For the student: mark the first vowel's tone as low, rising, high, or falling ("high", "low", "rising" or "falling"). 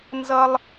low